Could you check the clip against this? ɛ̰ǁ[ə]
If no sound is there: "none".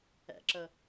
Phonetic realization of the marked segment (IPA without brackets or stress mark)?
ə